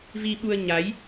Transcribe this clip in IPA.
v i˧ ɓ u˧ ə̯ ɲ a˨˦ j

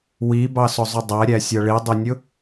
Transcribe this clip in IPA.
w i b ɑ s ʊ zˤ ʊ dˤ æ ɾʲ æ sʲ ʌ ɭ i dˤ i nʲ ʊ

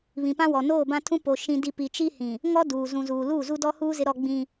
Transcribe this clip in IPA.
β ĩ˨ p ã˦ w ɔ˨ n oː˦˨ b ã˦ tʰ ũ˦ p o˨ ʃ ĩ˦ d i˦ p i˨ t͡ʃ i˦ h ĩ˨ | ŋ ɔ˦ d uː˨ z ũ˨ z uː˨ l uː˦˨ z u˦ d ɔ˦ h uː˦ z ɪ˦ ɾ ɔ˦ ɡ͡b ĩ˦

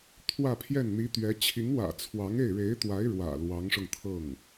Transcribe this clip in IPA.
t̪ʰ w ä˥˧ pʰ j ɛ˥˩ n n̪ i˧˥ t̪ ɥ ɛ˧˥ t͡ɕʰ i˧˥ ŋ w ä̰˨˩ t͡sʰ w ɑ˧˥ ŋ e˥˩ ɪ̯ ɻ e˧˥ ɪ̯ t̪ w a˧˥ ɪ̯ ɻ w ä̰˨˩ l w ɑ˧˥ ŋ ʂ ʊ˧ ŋ t̪ʰ ɤ˥˩ ŋ

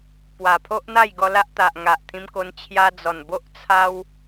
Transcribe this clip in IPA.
p w a˨˩ pʰ o˦ ʔ n̪ a˥˧ j ɡ ɔ˧ l a˦ ʔ t̪ a˨ ʔ ŋ a˨ ʔ t̪ʰ ĩ˧ m k o˧ n t͡ɕʰ j a˧ d͡z ɔ˨˩ n b o˦ ʔ t͡sʰ a˦ w

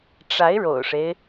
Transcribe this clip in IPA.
ʈ͡ʂ a˧˥ ɪ̯ ɻ o̰˨˩ ʊ̯ ʂ e˦ ɪ̯

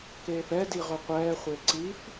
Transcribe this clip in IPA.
k eː f ɛ d i ʁ ɵ qʷ ɛː χʷ e ǀ i f

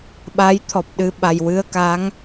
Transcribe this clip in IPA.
ɓ a˧˥ j t̪ʰ ɔ˨˩ p̚ ɗ ɨ˧ ɓ a˧ j w ɨ˧ ə̯ k a˧˥ ŋ

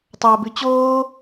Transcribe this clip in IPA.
tˤ ɑ ʊ̯ b ʉ t͡ɕ oː

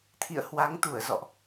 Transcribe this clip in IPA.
t̪ʰ ḭ˧˨ ə̯ h w a˨˦ ŋ t̪ u˧˩ ə̯ z ɔ̰˧˨ ʔ

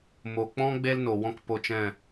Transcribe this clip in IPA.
m o˨ k͡p ɔ̃˦ ɡ͡b e˦ l n o˨ w ɔ̃˦ k p o˧ t͡ʃ ɛ̃˦˨

